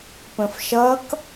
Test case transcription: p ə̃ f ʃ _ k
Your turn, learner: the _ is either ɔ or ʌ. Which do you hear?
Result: ʌ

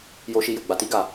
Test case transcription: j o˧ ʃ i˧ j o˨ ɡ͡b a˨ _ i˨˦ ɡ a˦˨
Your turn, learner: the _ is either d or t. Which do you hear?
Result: t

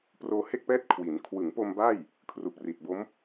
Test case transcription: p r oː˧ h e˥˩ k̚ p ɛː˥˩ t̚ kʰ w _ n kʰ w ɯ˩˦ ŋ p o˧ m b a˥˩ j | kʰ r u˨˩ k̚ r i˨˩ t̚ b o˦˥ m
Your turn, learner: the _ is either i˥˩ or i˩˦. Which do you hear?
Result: i˩˦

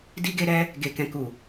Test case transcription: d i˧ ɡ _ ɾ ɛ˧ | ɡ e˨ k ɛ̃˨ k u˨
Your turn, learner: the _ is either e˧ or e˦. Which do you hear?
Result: e˧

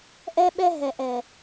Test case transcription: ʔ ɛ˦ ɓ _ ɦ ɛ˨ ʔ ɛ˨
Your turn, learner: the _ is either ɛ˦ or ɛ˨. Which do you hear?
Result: ɛ˦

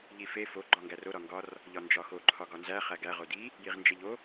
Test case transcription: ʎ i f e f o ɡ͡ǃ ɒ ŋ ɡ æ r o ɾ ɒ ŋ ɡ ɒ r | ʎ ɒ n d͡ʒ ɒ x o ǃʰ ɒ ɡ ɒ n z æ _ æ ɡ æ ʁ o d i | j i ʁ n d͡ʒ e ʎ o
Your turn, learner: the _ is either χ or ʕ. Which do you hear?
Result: χ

